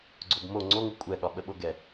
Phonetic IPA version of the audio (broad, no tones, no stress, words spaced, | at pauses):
ɡ͡ǀobmo ŋ͡ǀoŋu kʷʼɛɠɒɓə ɓoɡɛ